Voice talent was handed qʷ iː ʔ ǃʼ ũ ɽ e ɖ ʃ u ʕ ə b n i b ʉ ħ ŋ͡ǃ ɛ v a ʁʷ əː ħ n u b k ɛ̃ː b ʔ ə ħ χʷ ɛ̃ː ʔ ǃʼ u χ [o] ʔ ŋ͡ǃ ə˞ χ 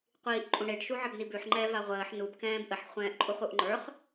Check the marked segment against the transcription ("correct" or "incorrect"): incorrect